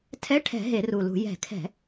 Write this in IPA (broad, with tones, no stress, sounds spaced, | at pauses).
tʰ ɛ˧˥˧ ʈʰ ɛ̤˧˩˧ ɦ e˧˩˧ r u˨˩ l ṳ˧˩˧ j ɛ̤˧˩˧ kʰ ɛ̤˧˩˧